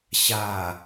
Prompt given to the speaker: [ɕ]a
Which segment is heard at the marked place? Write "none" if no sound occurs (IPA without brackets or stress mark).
ɕ